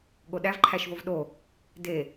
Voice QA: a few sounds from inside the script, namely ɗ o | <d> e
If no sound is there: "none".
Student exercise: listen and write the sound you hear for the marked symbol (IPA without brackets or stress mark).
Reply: d